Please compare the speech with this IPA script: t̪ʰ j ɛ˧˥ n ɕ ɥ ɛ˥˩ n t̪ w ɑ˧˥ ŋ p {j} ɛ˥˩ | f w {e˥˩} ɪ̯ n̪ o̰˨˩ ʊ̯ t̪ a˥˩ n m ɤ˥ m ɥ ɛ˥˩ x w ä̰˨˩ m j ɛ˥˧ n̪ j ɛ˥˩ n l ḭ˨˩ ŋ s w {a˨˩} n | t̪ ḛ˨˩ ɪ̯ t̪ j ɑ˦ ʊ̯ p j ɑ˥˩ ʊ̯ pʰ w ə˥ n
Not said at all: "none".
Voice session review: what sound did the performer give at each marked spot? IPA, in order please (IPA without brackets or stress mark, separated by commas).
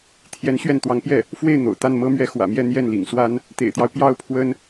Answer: j, e˥˩, a˥